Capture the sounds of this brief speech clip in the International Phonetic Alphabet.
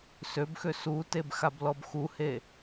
søbxø suteb xablɔbxuhe

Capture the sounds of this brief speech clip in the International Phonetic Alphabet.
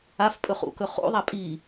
af pʼɵχṵkɵ χṵðˤa pʼi

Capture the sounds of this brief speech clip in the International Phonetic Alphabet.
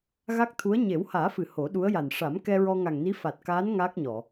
ɣa˦˥k̚t̪ʰu˧˥ə̯ ɲe˨˩˦whaː˨˩˦fɨ˨˩˨ ho˨˩˦ɗu˧˥ə̯ja˨˩n ʂa˨˩˦m kɛ˧ɹɔ˧ ŋa˨˩ŋni˧˥fa˨˩t̚kaː˧˥n ŋaː˦˥k̚ɲɔ˨˩˨

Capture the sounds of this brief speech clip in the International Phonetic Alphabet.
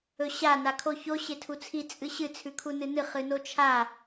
ɵɕa nakʰoço ɕetʰut͡sʰi t͡sʼɨɕɨ t͡sʰʉkʰunɨnɨ χɨnot͡ʃʰa

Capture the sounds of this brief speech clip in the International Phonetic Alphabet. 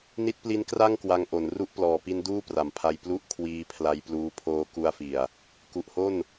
ni˦˥t̚pli˦˥nkra˥˩ŋ kwa˧ŋʔo˩˦n ru˥˩ʔplɔː˨˩pi˦˥n duː˥˩pra˩˦mpʰa˧j plu˥˩ʔkʰwiː˧ pʰla˧jpluː˧ pʰoː˦˥ku˦˥a̯fi˨˩a̯ | ku˨˩ʔho˥˩n

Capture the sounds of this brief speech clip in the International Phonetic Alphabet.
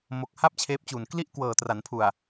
mo˨˩k̚ha˥˩p̚ t͡ɕʰeː˦˥p̚t͡ɕu˨˩n kli˥˩ʔ kwɤː˨˩tra˩˦npʰu˨˩a̯

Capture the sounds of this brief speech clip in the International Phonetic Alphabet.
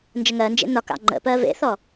nd͡ʒəŋɜnd͡ʒḛ nɒkɑ̰ ŋ͡ǃə̰pɜ vḛθɔ

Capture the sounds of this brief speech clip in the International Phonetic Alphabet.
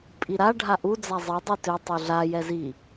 pʼiɾa ɖʱaʔu d͡zazˤi dˤitø tˤuɮa jɛzi

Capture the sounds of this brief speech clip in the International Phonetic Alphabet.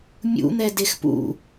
mʲṵn̪ɛ dexpṵ

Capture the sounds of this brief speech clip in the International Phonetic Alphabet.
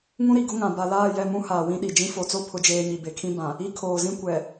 ŋũ˦ɾi˨ ɡʊ˦ŋã˨ ba˨laː˦˨ jɛ˦˨mũ˦haː˨ wĩ˦ɗi˨d͡ʒĩ˦ fo˨t͡so˦ pʰʊ˦d͡ʒeː˦ɲi˨ be˨kʰĩ˦ bã˨ | i˦kʰoː˨zĩ˦ kʷɛ˨

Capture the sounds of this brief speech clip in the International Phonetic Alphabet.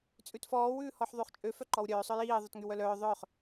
t͡sʼʉtfɔːw ʉːhɔħðˤyχt͡ʃʼø fœǃɔwɾʲœː sˤœjiː ðˤʉtŋywœlœː ðˤœχ

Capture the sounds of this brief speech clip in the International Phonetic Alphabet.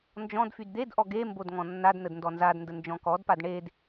nd͡ʒɔ̃d fydd̪edʔɔ ɡembod ŋɔ̃nːadnəd ndɔnzadndə nd͡ʒɔ̃kɔdpad ɳed

